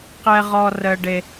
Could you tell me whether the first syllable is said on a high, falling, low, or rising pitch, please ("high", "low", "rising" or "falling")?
high